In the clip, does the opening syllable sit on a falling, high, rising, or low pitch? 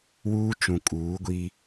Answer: high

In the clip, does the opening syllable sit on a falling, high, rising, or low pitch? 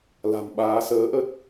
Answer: low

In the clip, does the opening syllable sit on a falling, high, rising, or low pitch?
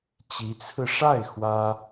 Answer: rising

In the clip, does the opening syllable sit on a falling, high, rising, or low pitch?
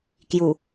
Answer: low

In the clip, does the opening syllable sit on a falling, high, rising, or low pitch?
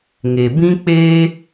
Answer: low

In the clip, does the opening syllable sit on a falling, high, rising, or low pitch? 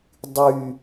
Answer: high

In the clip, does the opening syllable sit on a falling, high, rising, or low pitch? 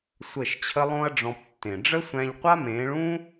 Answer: falling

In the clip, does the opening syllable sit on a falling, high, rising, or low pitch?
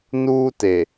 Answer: high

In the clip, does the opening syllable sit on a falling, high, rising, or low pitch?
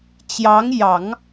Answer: rising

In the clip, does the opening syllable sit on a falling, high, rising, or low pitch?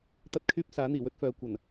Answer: high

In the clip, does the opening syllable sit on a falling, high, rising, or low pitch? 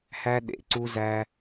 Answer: high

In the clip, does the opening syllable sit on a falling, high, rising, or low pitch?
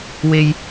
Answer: low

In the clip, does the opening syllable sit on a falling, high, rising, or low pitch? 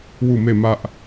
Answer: falling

